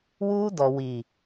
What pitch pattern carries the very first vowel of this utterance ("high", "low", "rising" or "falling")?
high